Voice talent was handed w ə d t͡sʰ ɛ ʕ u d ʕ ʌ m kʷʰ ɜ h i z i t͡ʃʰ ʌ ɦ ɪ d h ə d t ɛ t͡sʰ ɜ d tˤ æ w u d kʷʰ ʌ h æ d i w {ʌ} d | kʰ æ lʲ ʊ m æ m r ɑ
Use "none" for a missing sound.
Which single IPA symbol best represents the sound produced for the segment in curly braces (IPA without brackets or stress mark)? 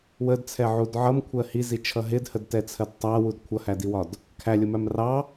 ɒ